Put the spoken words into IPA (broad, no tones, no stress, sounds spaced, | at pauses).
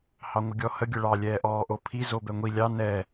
h ɑ ŋʷ ə ɡʲ ɔ h ə ɡʲ ə ɭ ɑ lʲ ɛː ʔ ɔː ʔ o pʰ i z o b ɛ ŋʷ i lʲ ɑ n ɛ